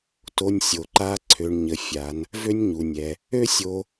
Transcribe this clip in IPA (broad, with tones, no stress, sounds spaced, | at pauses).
t o˧ nʲ sʲ o˩ ǃ a˧˥ ǀʰ ø˩˧ ɳ ɲ ə˩˧ fʲ a˩˧ n | v ø˥ nʲ ɲ u˩ nʲ ɛ˩ | ø˥ sʲ o˧